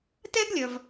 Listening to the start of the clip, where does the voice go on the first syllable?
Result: high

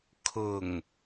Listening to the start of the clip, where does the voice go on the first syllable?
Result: low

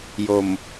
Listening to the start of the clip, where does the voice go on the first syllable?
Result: low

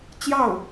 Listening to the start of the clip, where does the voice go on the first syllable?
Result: falling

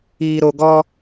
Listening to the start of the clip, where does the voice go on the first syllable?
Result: low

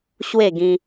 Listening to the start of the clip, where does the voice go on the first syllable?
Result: falling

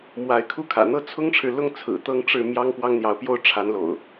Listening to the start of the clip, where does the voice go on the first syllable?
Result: rising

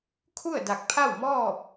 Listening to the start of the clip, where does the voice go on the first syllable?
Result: falling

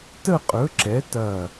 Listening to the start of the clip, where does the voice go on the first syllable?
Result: falling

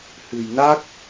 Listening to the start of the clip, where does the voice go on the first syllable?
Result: low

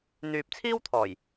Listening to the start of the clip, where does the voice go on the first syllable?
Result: low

